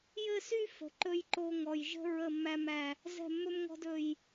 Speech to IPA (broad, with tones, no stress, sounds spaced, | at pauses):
j ɘ˦˨ s y˦ f ə̤˨ ǃ ɵ˦ j ǃ o˦ ŋ ɔ˨ j ʒ ə̤˦ ɹ ə˦˨ mː æ˦ m æ˦ | z ɛ̤˦˨ mː ɵ˦ m ŋ ɔ̤˦ d ɵ˦ j